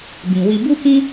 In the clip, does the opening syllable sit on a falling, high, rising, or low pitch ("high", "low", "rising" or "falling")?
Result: low